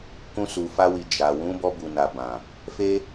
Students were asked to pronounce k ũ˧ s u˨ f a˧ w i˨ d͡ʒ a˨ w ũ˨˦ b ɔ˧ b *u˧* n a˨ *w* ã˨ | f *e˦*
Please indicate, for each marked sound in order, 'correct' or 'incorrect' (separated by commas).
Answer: incorrect, incorrect, correct